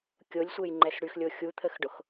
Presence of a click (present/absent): present